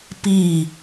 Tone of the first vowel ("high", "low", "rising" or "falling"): falling